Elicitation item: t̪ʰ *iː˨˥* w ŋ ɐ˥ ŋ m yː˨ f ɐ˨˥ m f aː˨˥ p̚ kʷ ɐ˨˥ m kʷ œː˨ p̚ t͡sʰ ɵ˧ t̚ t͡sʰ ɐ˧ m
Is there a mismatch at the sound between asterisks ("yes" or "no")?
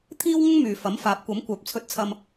yes